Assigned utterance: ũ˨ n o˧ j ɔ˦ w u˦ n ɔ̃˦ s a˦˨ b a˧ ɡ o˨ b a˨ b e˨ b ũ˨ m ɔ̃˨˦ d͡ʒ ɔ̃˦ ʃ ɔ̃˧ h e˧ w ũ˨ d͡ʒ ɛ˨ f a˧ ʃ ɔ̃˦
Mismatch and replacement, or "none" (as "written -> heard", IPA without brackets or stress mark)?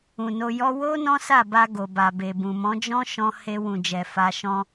u˦ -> o˦